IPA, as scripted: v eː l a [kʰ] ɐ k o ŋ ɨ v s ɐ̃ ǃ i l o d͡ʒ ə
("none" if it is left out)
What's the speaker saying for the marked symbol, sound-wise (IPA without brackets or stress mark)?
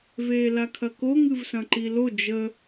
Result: kʰ